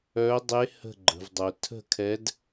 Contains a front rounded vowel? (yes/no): yes